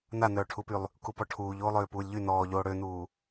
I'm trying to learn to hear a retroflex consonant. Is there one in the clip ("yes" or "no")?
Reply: yes